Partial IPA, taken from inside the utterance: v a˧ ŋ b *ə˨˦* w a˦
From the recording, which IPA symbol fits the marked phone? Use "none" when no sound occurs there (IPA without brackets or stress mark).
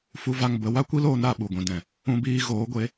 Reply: ə˨˦